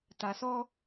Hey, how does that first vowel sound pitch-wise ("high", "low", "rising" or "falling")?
low